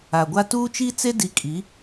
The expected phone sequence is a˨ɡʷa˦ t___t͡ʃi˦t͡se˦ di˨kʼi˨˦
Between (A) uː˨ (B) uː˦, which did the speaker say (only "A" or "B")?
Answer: B